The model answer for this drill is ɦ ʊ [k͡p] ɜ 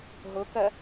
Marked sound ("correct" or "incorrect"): incorrect